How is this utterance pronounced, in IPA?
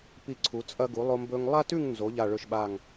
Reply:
p i˧˩ ǀʰ u˩˧ t͡sʼ ɐ˧ ɡ u˩˧ lˠ o˧ m b ɵ˧ ŋ lˠ a˥ t ʉ˥˧ ŋ n z o˩˧ ʎ a˥˧ ɭ ɵ˥˧ ʃ ɓ a˥˧ ŋ

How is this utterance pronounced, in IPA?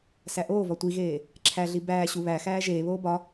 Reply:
s æ ʔ oː v ɒ tʷ i ɣ eː | ǁʰ æ ɮ i b æː ɕ u β æ x æː ʒ eː β oː b ɒ

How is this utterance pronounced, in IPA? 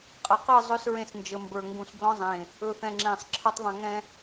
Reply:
qʼ ə˨ q ɯ˦˨ zˤ ɵ˦ s ɹ ẽ˦ s n d͡ʒ ə˨ m b ə˞˨ ŋ ɡ ũ˨ s b l ɔ̃˦ zˤ ẽ˨ | ɵ˨ θ ɛ̃˨ ŋ͡ǁ ẽ˨ sˤ ǁʰ ɯ˨ tˤ ðˤ ɛ̃˨ ŋ ɛ̃˦

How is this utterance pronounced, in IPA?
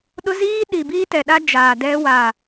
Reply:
ɗ ʊ˦ z iː˦ ɗ i˨ b iː˦ t ɛ˨ ɗ a˦ d͡ʒ aː˨ d ɛ˦ w a˨

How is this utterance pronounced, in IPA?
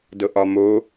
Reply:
d ɤ ʔ ɒ m o

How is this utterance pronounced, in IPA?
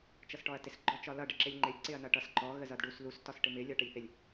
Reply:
t͡ʃ ʌ s ʈ ɔ ɐ̯ t ɪ s ɡ͡ǃ ɔ t͡ʃ ɒ l ʌ ɖ ɪ ǁ ɪ lʲ ŋ͡ǃ ɪ lʲ ǀ ɪ ɐ̯ n ʌ ʈ ʌ s ǃ ɔ ɣ ə z ʌ d ɖ u s l u s t ɒ s ʈ ɪ m ɪ lʲ ɒ ʈ ə lʲ θ ɪ lʲ

